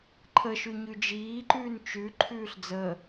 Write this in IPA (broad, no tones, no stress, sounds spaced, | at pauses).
ǃʰ ə ʃ ʉ ɲ ʉ d͡ʒ iː ǃ ʉː n t͡ʃ ʉ ǃʰ ʉː ɬ d͡z əː